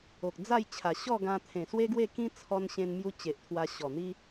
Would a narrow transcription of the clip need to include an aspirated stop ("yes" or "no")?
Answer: yes